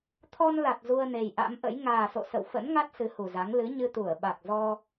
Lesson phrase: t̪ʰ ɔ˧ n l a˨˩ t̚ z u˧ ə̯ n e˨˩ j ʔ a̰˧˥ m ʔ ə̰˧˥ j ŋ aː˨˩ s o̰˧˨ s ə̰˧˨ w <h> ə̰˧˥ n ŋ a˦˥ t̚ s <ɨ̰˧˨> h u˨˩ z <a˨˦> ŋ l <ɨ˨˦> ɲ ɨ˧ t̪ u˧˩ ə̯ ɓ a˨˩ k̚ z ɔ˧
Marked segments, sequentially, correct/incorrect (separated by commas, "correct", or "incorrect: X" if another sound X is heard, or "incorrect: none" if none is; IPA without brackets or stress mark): incorrect: f, incorrect: ɨ˨˦, correct, correct